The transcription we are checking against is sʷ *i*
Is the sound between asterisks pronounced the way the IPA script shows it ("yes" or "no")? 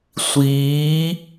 no